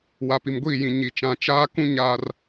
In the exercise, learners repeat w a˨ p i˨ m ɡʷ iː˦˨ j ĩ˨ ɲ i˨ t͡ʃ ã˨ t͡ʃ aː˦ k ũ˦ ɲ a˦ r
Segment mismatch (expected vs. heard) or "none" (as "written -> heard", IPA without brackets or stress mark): none